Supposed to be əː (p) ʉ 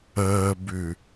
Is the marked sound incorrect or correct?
incorrect